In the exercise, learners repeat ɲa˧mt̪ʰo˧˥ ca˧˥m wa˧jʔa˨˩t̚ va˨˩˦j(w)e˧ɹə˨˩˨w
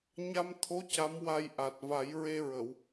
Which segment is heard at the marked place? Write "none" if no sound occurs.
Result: ɹ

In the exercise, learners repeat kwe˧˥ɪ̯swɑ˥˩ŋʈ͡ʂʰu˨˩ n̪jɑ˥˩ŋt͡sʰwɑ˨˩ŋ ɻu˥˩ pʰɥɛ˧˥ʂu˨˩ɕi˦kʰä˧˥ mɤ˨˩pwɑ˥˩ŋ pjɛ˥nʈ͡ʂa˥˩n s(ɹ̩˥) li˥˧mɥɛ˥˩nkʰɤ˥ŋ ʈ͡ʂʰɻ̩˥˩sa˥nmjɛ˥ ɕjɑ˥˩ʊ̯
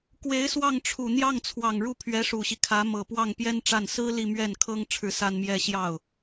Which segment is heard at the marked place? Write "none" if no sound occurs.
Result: ɹ̩˥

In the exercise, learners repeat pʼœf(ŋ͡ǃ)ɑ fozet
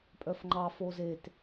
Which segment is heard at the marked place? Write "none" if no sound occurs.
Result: ŋ͡ǃ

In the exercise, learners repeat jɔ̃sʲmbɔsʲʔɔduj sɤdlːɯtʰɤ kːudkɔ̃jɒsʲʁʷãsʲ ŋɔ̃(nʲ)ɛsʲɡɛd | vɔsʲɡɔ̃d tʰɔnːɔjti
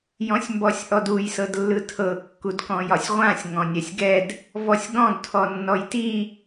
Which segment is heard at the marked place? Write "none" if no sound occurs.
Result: nʲ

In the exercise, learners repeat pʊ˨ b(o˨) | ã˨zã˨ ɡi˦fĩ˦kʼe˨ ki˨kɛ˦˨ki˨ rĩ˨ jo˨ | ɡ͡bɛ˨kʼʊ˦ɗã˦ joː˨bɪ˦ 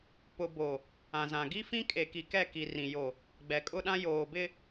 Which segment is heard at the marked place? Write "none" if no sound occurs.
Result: o˨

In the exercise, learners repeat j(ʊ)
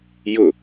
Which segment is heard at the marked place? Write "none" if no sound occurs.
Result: ʊ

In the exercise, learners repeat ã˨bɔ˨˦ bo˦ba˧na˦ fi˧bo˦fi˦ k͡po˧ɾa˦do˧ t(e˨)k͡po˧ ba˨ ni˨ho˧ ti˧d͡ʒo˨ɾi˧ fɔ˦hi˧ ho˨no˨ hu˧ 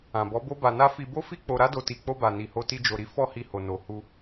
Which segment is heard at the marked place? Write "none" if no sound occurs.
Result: i˨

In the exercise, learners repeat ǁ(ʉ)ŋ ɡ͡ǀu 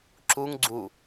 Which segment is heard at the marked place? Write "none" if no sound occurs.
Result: u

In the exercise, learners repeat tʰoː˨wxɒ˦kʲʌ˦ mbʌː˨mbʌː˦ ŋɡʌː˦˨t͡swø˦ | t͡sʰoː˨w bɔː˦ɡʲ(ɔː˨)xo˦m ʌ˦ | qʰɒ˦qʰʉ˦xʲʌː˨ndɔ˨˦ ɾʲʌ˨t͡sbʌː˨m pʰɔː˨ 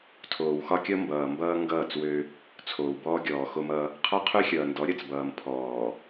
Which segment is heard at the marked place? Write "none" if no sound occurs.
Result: ɔː˨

